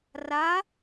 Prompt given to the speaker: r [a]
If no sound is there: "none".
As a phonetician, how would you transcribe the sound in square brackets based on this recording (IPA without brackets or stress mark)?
a